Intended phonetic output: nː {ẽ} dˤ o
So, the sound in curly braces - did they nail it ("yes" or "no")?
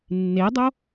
no